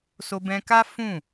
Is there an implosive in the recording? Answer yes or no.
no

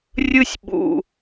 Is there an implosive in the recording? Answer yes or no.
yes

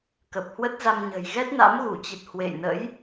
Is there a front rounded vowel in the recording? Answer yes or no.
no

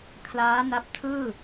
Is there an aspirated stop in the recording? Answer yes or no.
yes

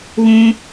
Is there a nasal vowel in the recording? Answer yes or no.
yes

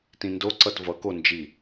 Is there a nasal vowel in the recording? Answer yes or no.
yes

